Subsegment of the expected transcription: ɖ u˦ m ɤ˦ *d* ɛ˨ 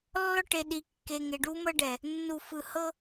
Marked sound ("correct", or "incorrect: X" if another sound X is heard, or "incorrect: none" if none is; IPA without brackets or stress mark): incorrect: ɖ